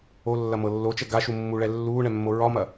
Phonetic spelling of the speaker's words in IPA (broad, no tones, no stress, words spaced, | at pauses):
olːɐmɤ lːot͡ʃɛ ɡaʃu mːuɭɛ lːuːɳɛmːo ɹɒmɐ